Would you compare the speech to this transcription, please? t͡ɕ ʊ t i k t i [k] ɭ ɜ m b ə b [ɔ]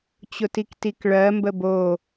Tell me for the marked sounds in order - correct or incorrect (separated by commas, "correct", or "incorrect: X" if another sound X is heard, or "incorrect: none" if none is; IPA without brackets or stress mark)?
correct, incorrect: o